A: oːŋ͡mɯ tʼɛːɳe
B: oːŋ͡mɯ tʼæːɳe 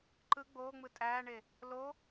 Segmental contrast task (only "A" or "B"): B